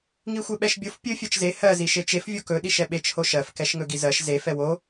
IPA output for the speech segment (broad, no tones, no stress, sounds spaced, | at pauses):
ŋ i xʷ e ɓ ɛ ʃ bʲ o f pʲ ɵ fʲ ɜ t͡ʃ z e h ɜ z i ʃ e t͡ʃ e f vʲ o k ɵ ɗ i ʃ ɛ ɓ e t͡ʃ h o ʃ ɜ f k ɛ ʃ ŋ ɵ ɡ i z ɜ ʃ z e f ɛ w o